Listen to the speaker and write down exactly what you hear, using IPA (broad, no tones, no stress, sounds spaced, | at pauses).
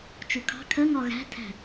t͡ʃ u kʰ ɑ̤ kʰ ɜ ŋ ɒ ɣ æ̤ tʰ æ̤